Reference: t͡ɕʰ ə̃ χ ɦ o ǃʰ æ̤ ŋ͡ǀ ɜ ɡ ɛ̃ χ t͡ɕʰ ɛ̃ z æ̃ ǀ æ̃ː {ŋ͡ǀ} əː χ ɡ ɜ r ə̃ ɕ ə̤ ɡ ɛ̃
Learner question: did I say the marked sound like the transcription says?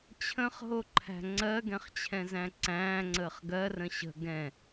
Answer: yes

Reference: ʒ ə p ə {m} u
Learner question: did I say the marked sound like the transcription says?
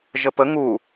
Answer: no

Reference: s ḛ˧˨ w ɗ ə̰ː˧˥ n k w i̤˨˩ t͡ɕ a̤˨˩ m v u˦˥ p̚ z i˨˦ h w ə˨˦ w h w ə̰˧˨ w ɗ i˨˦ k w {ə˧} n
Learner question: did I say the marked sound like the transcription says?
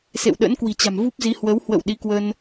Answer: yes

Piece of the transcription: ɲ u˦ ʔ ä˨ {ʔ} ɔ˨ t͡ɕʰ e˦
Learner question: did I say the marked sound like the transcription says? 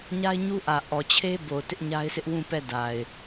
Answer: yes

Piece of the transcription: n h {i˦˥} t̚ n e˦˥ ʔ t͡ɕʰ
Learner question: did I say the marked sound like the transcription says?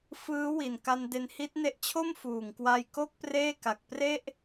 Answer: yes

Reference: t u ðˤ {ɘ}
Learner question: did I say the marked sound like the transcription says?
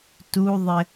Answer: yes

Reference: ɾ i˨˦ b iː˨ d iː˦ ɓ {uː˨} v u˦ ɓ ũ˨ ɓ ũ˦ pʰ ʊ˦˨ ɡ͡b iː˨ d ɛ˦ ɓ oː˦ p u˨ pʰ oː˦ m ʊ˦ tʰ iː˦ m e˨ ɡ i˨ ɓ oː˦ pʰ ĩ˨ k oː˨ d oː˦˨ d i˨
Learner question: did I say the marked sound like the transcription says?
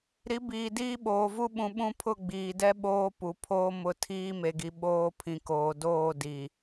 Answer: no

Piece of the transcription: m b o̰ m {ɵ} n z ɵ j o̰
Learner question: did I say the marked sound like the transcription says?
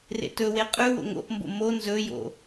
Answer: no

